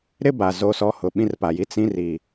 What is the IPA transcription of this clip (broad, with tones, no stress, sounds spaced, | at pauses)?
ɾ ɪ˦ b a˨ z o˦ s ɔ˦ h ʊ˨˦ ɓ ĩ˦ r p a˨ j i˦ t͡s ĩ˦ r i˨